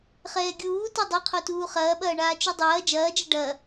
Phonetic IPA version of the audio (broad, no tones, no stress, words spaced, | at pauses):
χɛːɡʲuː tɐdˤɐqʰotuː χɐːɓɐːɳaː t͡ʃudˤɐː d͡ʒɐːd͡ʒɐ ɖɐ